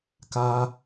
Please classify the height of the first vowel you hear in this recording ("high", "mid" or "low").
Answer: low